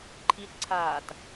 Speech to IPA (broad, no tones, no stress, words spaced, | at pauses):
ǃʰitǀʰaːt